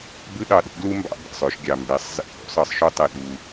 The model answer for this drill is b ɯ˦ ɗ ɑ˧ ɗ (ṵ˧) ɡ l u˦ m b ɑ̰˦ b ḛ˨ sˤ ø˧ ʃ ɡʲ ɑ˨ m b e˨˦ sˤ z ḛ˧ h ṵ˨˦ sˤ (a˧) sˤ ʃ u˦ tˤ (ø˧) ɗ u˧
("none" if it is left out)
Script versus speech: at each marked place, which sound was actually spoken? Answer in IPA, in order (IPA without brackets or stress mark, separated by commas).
ṵ˨˦, ɑ˧, e˧